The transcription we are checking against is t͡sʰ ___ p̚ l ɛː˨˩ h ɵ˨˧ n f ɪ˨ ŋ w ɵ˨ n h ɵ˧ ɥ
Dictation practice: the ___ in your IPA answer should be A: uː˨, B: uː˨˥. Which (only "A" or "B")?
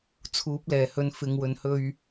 B